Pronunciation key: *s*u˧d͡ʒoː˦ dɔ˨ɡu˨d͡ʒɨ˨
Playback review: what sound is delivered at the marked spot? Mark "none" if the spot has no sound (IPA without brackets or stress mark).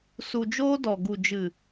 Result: s